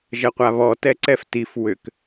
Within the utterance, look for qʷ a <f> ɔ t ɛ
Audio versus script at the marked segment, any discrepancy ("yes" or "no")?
yes